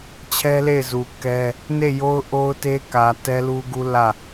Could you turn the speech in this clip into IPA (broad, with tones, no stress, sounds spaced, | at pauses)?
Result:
t͡ɕʰ ɛ˦ l e˦˨ ɪ̯ z u˨ k ɛ˦ | n e˦˨ j o˦ ʊ̯ ʔ o˦ ʊ̯ t e˦ k ä˨ t ɛ˦ l u˦ ɡ u˦ l ä˦˨